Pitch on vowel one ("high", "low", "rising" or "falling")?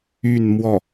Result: falling